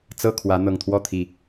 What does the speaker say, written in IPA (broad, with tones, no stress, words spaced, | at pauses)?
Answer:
t͡sɤ˥˨kʰwä˨˦ n̪ɤ˨˩ŋt̪ʰwɔ˥˨t̪ʰi˨˩